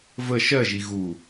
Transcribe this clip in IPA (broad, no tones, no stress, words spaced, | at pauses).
və ʃɜʒi ɣu